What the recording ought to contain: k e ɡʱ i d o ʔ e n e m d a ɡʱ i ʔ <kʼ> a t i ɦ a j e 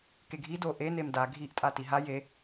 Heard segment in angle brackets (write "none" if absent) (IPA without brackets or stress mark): tʼ